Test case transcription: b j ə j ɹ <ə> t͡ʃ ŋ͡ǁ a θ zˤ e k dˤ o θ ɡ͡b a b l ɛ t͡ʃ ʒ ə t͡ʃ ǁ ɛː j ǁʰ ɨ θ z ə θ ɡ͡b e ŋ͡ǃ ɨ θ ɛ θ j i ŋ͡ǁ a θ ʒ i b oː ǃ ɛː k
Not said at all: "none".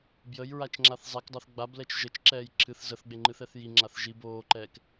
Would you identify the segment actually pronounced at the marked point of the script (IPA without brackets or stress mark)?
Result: a